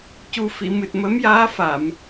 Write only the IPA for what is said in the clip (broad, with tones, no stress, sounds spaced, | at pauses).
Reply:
c u˨˩ f i˨˩˨ m ɨ˨˩ t̚ m ə˧˥ m j aː˧˥ f a˨˩˨ m